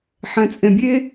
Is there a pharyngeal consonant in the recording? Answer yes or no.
yes